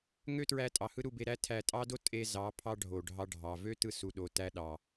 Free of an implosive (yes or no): no